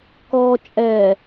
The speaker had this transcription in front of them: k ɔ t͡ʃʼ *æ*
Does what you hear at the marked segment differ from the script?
yes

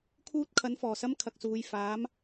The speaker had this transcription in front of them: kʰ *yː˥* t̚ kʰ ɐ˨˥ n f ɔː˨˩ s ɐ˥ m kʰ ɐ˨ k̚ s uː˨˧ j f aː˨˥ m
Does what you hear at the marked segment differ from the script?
yes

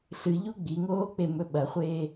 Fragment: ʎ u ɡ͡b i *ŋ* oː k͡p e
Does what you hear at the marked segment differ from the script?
no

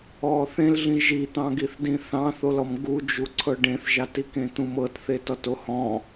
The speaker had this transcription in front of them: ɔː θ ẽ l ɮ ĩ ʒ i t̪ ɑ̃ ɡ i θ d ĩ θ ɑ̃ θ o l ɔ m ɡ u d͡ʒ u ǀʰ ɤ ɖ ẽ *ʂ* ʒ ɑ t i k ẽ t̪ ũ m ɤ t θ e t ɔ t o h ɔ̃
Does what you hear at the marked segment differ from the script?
yes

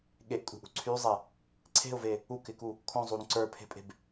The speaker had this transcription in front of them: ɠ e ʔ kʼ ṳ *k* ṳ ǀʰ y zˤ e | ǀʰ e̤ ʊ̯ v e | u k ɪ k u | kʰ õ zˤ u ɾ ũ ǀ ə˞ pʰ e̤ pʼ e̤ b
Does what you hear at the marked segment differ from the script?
yes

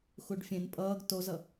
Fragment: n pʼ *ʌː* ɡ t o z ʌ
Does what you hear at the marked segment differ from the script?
no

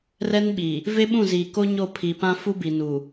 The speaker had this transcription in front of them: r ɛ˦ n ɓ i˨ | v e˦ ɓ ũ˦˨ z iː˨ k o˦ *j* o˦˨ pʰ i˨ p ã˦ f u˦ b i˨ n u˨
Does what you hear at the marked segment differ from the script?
yes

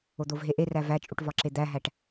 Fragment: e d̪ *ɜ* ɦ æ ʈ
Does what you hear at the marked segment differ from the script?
yes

